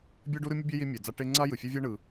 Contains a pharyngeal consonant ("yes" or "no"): no